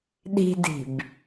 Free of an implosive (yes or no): no